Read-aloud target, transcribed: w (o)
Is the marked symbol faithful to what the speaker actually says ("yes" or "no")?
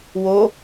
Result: yes